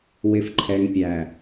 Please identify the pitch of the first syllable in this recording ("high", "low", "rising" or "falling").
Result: low